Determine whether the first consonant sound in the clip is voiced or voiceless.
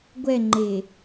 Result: voiced